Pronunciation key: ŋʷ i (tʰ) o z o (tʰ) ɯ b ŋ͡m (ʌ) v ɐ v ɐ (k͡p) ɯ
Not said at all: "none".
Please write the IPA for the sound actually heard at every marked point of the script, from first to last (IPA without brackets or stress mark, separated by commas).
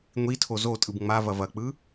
tʰ, tʼ, a, k͡p